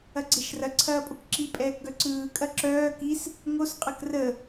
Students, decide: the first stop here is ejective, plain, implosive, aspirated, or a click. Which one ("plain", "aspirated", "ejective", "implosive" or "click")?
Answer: click